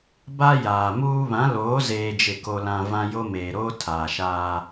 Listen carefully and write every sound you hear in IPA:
b a˦ j aː˨ m uː˦ β ã˨˦ l oː˨˦ z eː˦ d͡ʒ ɪ˦˨ k o˦ l ã˦ v ã˦ j o˦ m eː˨ ɾ oː˦ tʰ aː˨ ʃ aː˦

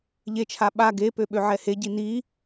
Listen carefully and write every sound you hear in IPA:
ʎ e t͡ʃʰ a ɓ a ɡ e p ø ɓ ø ʕ ɛ h e ɟ i n i

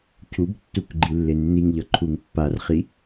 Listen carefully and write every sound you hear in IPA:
cʰ u b tː u k ɡ͡ǃ i lː e nː i ŋ ʎ ʌ ǃʰ u ŋ pː a r χ i

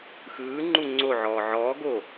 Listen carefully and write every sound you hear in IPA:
x ɯː ŋ͡ǃ u ŋ͡ǀ o ʕ ɔː ʕ ɔː ɡ o

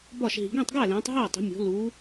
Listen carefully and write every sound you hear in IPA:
b ɒ˥˨ ʃ ɦ i̤˨˦ ɡ ẽ˥˨ tˤ ɡ æ˥˨ l ẽː˨˦ tˤ ɦ æ˥˨ tˤ e̤˨˦ mʲ o̤˨˦ l uː˨˦

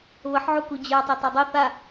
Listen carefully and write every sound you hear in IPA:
β ə ħ ʕ u k u d͡ʑ ə˞ tˤ ɛ t ɛ dˤ œ θ a

